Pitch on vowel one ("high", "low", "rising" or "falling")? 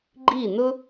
falling